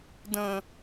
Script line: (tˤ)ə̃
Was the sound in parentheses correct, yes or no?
no